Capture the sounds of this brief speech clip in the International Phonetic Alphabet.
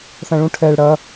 θ ɐ̃ ɭ ũ ʈʰ ɛ ɭ ɽ ɐ

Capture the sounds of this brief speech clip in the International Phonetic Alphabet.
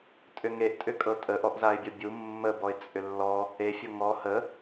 tʼ ʏ ŋ e ʔ tʼ ʏ kʼ ɤ tʼ ə ʔ ɔ ʔ z a ɪ̯ bʲ ɔ bʲ u mː ə b ɔ ɪ̯ t͡sʼ ʏ lː ɔ | e fʲ ɤ ŋ ɔ h ə

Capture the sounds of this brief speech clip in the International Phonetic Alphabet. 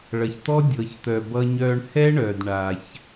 ɭ ʌ˨ ç t̪ ɔ˦ dʲ ɤ˨ ç t̪ œ˨ b ʌ˦ ɲ œː˦ ɳ h ɛ˦ ɳ œː˨ d ɳ a˦ ç

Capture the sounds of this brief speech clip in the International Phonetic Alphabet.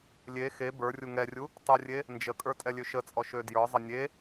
lʲ e x e b ə˞ rʲ u ŋ ɛ rʲ u | tˤ ə rʲ e | n d͡ʒ ə kʼ ə˞ tʼ ɛ lʲ ø ʃ ə t͡sʼ ɔ ʃ ø d j ə˞ zˤ ə nʲ e

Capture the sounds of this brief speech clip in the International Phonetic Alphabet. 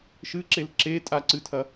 ʃ ɨ ǁ e l ǁ e tʼ a ǀ ɨ tʰ ɐ

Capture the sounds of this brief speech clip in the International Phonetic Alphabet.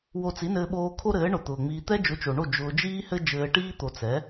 w o˧ t͡s i˨˦ n ɘː˧ ɓ oː˧ kʰ o˦ ɾ ɘː˨˦ ɳ ʊ˨ t̪ ʊː˨ ŋ͡m iː˧ t̪ ɛ˦ d͡ʒ ʊ˨˦ t͡ʃ o˨ ɳ o˦˨ d͡ʒ ʊː˧ d͡ʒ iː˦ h ɘ˦ d͡ʒ ɘː˧ ʈ iː˦ t̪ o˨ t͡s ɛ˨˦

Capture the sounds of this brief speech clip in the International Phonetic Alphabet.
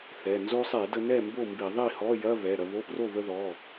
θ ɛ˩˧˩ n z o˧ sˤ e˧˩˧ d ə˧ n ɛ˥˩ m b o˥˩ m b i˧˩˧ ðˤ i˥˩ h ɔ˧˥˧ j ɐ˧˥˧ β ɛ˩˧˩ ɾ ɐ˧ β o˧˥˧ p r o˥˩ β ə˧ ð ɔ˩˧˩

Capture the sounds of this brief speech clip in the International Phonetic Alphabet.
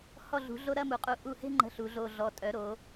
h ɔ˧˩ ɮ ṳ˩˧ ɮ o˧ ɾ ɐ˥˧ m u˩˧ qʼ u˧˩ ʔ u˧˩ h e̤˥˧ ŋ͡ǃ ə̤˧ ɬ u˩˧ ɮ o˧˩ ɮ ɔ˩˧ tʼ œ˩˧ ɾ o˩˧

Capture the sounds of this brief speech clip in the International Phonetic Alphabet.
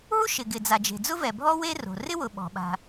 ɦ u˥ ʃ ɪ˩ ɡ ɪ˩ d͡z a˩ d͡ʒ e̤˩ d͡z ʊ˥ v ɛ˩ bʱ ɔ˥ w e˥ r o̤˩ r ɪ˥ w ʊ˩ ɓ ɔ̤˩ ɓ a̤˩

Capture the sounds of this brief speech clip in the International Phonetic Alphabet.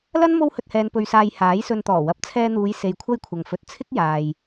l ɐ˥ n m o˥ w h ɵ˧ t̚ h ɛː˧ n p ɵ˨ ɥ s aː˨ j h aː˨˥ j s ɵ˧ n t̪ ɔː˨˩ w ɐ˨˥ p̚ t͡sʰ ɛː˧ n̪ uː˨˧ j s e˧ j kʷʰ ɐ˥ j kʷʰ ɐ˨ ŋ f ɵ˧ t̚ t͡sʰ ɪ˥ k̚ j aː˨ j

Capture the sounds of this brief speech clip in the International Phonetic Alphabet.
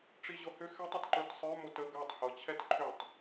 ʈ͡ʂ i ʑ ɤ h ʏ x ɛ tˤ ʏ t ǃ ə˞ t sˤ ə˞ m o t ə ɡ a tˤ h ɤ t͡ɕʰ ɛ t ǃʰ ʏ tˤ

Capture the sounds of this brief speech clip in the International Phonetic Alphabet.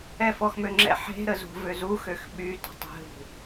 ɛ f ɔ x m ø ŋ͡ǁ ɛ̰ ħ e̤ ɾ ə z ṳ v ø z u x ø x ɓ y t o̤ tˤ e̤ ɦ ṳ

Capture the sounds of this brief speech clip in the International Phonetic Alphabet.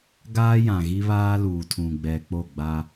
ɡ aː˦ j ã˨ ɣ i˦ β aː˦ l uː˨ tʰ ũ˨ ɡ͡b ɛ˨ k͡p o˦˨ ɡ͡b a˦

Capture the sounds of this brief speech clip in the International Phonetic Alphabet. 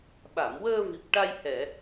ɓ a˨˩˨ m w əː˧ v i˨˩ p̚ ʈ a˧ j h ɛ˨˩˨

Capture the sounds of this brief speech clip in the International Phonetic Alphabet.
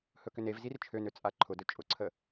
h ɵ k ʏ n e v z i r t͡ʃʰ ø n ø t͡sʼ a ǃʰ ʊ d ɵ t͡ʃʼ ʊ ǀʰ ə

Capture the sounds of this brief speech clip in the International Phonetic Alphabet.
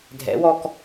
dʱ ɛ̰ w ɔ k

